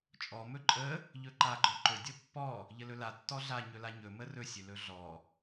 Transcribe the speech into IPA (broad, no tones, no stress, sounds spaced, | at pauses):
t͡ʃʼ ɔ m ɵ ǃʼ ə | ʎ ɵ ǃ a ɡ͡ǃ ɔ ǃ ɵ dʲ ɔ pː ɔ | ʎ ə l ɵ l a tː ɔ ɮ a ɲ ɵ l a ɲ ɵ m ə r ɵ sʲ ɵ l ɵ ɮ ɔ